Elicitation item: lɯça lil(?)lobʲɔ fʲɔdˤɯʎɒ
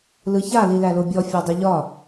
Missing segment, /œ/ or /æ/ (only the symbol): æ